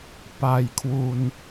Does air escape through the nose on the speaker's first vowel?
no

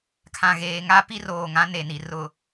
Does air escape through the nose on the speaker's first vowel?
yes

